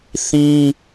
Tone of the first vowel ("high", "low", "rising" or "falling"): high